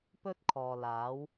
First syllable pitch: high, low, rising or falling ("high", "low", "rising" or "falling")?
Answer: high